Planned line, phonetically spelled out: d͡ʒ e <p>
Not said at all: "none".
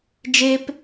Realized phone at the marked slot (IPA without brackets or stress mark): p